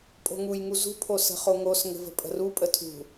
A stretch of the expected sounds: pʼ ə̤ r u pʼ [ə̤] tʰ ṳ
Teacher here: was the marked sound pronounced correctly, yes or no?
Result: no